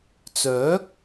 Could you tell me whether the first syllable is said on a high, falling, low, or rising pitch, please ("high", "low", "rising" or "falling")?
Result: rising